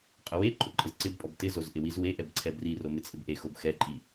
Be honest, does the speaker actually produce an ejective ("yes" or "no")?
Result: yes